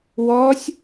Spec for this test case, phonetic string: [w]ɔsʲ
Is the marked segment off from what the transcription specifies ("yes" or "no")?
no